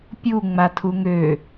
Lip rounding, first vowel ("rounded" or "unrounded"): rounded